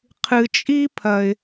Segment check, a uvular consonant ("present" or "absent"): present